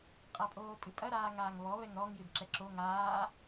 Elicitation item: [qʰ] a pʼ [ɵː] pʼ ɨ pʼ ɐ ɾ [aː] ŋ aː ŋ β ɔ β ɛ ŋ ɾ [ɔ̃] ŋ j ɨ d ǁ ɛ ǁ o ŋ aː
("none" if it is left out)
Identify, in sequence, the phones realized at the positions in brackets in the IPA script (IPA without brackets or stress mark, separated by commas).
qʼ, oː, aː, ɔ